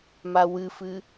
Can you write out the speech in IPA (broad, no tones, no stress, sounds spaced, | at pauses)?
m a w ɨ f ɨ